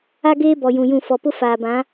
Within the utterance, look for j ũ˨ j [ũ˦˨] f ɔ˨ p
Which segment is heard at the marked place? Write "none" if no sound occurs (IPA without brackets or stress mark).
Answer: ũ˦˨